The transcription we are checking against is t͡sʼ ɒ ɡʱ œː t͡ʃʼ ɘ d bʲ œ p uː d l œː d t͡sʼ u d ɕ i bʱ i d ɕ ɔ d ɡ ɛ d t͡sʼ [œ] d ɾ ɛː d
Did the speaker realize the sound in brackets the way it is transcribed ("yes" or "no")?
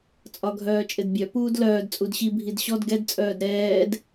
no